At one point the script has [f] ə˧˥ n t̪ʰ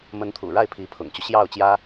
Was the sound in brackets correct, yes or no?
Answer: no